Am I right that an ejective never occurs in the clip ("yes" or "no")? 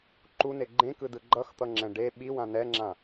yes